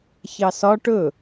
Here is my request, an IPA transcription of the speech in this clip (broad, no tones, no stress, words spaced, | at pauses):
çɑsɒ ʈɵ